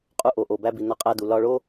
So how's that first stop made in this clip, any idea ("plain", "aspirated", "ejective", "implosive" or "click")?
ejective